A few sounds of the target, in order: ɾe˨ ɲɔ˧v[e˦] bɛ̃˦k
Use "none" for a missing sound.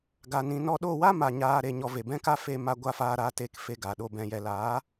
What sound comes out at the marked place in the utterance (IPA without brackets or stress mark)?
e˨